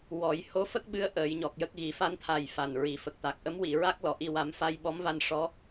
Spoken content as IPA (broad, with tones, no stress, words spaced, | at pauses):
wɔ˨˩˦j ho˧˥fə˦˥k̚ɓɨ˧˥ə̯ ʔəː˨˩˦jɲɔ˨˩k̚jə˦˥k̚ ɣi˨˩˦fa˧˥nt̪ʰa˨˩j fa˨˩nɹi˨˩fə˨˩k̚t̪a˨˩k̚ ʔə˧˥mwi˨˩˨ɹa˦˥k̚ lɔ˨˩˨ʔi˧wa˧˥m fa˧jɓɔ˧˥mva˧n ʂɔ˧˥